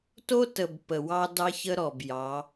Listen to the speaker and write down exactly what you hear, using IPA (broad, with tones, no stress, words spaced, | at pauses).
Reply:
to˦tə˨b pə˨wɑ˦ dɑ˦ç ə˦ɾɔ˨b jɑ˨˦